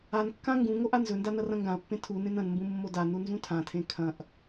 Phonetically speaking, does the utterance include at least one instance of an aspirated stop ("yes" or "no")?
yes